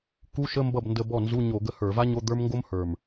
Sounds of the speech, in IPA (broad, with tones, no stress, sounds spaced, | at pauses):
k u˧˥˧ ʃ ə˧˥˧ m b ʌ˥˩ b n d ə˧ b ɔ˥˩ n z u˧˥˧ ɲ o˧˩˧ ɡ ə˧ h ə˞˧˩˧ v a˥ ɲ o˧˥˧ d̪ ə˞˥ m ŋ ɡ o˥ m h ə˞˨˩ m